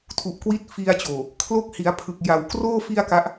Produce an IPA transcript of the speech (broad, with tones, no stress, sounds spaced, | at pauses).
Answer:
tʰ u˨˩ ʔ k w i˦˥ t̚ f i˧ a̯ t͡ɕ oː˨˩ | kʰ l o˦˥ k̚ h i˩˦ a̯ pʰ ɯ˨˩ k̚ j a˨˩ w k r oː˥˩ f i˥˩ a̯ k a˦˥ ʔ